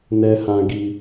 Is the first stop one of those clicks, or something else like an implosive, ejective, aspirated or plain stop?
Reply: plain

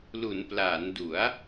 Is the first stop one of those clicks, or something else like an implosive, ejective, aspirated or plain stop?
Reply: plain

